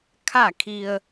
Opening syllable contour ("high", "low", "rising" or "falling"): falling